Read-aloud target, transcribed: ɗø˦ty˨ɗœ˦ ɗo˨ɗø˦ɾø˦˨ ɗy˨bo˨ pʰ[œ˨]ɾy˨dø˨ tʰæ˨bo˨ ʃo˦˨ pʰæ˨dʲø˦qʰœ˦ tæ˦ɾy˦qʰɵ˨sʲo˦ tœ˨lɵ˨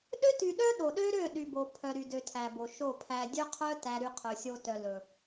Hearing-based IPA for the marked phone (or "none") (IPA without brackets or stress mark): œ˨